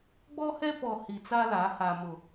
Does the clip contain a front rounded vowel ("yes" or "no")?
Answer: no